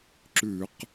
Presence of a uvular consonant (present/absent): present